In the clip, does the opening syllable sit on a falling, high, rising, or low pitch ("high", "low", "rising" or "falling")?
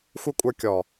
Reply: high